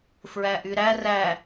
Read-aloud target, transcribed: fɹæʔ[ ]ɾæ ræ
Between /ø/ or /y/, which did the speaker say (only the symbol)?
y